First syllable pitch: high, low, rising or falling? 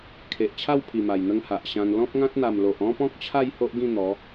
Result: low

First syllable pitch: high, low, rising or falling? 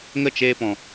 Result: high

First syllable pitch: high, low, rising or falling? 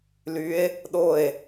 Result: rising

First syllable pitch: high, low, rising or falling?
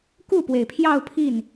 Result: falling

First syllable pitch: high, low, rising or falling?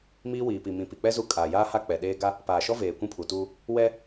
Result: high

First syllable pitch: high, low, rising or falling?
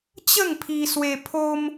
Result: falling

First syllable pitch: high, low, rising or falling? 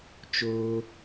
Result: high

